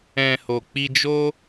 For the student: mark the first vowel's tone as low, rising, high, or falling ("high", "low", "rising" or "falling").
low